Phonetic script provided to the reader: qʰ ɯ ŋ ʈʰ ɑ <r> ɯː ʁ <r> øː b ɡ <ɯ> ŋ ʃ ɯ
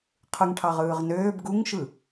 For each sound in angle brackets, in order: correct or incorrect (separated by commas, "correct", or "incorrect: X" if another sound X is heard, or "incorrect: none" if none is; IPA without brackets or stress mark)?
incorrect: ʁ, incorrect: n, incorrect: u